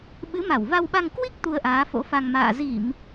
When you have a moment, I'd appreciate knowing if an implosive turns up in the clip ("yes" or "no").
yes